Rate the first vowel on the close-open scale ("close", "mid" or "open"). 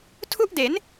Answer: close